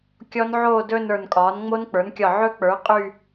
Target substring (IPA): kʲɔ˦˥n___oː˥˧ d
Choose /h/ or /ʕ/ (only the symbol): ʕ